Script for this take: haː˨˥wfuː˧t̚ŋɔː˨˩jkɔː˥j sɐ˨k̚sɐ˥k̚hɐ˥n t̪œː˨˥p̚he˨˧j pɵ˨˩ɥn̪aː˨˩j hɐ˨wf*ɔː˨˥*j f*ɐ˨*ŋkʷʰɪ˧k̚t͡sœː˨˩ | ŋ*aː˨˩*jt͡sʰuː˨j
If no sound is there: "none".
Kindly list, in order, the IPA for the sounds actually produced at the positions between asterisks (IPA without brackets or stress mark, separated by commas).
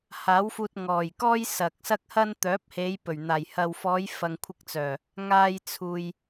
ɔː˨˧, ɐ˨, aː˧